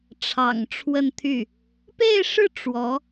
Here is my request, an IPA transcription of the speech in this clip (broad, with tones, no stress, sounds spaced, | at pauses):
ʈ͡ʂʰ ɑ̰˨˩ ŋ ʈ͡ʂʰ w ə˥˧ n t̪ʰ y˥˩ | p e˥˧ ɪ̯ ʂ ɻ̩˥˩ ʈ͡ʂ w ɔ˧˥